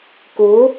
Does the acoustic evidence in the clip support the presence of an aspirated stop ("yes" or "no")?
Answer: no